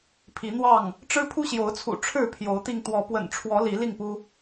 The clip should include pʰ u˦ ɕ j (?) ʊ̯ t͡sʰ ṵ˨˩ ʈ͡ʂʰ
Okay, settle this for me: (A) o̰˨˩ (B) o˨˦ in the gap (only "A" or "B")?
B